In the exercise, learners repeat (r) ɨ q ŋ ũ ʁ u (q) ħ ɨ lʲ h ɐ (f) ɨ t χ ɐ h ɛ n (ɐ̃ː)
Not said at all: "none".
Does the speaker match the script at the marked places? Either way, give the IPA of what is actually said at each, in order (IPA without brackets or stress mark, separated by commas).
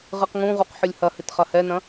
ʁ, q, h, ɐ̃